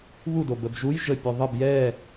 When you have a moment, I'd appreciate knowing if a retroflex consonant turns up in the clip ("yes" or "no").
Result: no